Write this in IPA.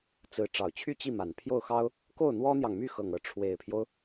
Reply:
t͡sɹ̩˧˥ ʈ͡ʂɑ˨˩ʊ̯t͡ɕʰy˥˧ t͡ɕi˥˩ma˨˩npʰjo˥˩ʊ̯ xɑ˥ʊ̯ | ko˥˩ʊ̯n̪wɔ˥n̪jɑ˨ŋmy˥˧ xɤ˥˧ŋɤ˥˩ ʈ͡ʂʰwe˨˩ɪ̯pʰjo˦ʊ̯

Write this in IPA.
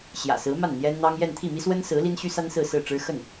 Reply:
ɕjä̰˨˩sɹ̩˧˥ ma˥˩n n̪jɛ˥nn̪ɑ˥ŋ jɛ˥˧n t̪ʰi˥˩mi˥swə˥nsɹ̩˧˥ li˥nɕy˥sa˥n sɹ̩˥˧sɹ̩˥˩ʈ͡ʂɻ̩˥ xə˥˩n

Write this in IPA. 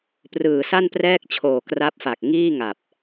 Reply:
prɯː˨˩sa˥˩nprɛː˥˩k̚ t͡ɕʰoː˨˩kra˦˥p̚fa˨˩k̚ŋiː˥˩ ŋa˨˩p̚

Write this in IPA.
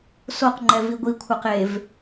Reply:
soqŋ͡ǃɛ viɡʷikʷʰaq ev

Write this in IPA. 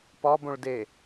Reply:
pɒbõɭ de

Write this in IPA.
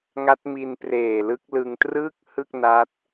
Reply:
ŋa˦˥t̚mi˧n preː˨˩lɯ˦˥k̚ lɯ˧ŋ trɯː˥˩k̚hɯ˥˩k̚ na˦˥t̚

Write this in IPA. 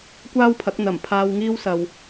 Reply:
kʷaː˥wpʰɐ˨˥k̚ n̪ɐ˨˩m pʰaː˧wŋiː˥w sɐ˨w

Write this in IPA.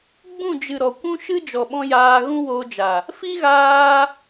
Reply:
ɡ͡bũ˦˨d͡ʒɨ˨ ɾɔ˨kʷũ˦ ʃɨ˦d͡ʒɔ˨ɓɔ̃˧ jaː˧ɣũ˦woː˧d͡ʒa˨ | fi˦ɣaː˧

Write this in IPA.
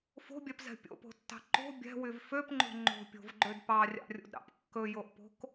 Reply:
fo̤bʲɛpzɛ̤ pʲo̰po̤tːɑ̤ ǃo̤ bʲɛ̤wyv føpŋ͡ǃo̤ ŋ͡ǃo̤pʲo̤vɡ͡ǃød pɑrʲɑ̰rʲo̰dɾɑ̰p kːɵjoʔpo̤k

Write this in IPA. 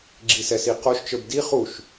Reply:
ɡ͡ǁisɛsiqoʃ t͡ʃə˞bdi χuʃ

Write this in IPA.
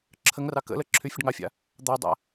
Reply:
ǁʰəŋrɑ kə̰lə ǁʰyfʲəɖŋɑfʲa̰ | d̪ɑdˤa̰

